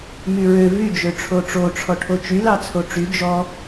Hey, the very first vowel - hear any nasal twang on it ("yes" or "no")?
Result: no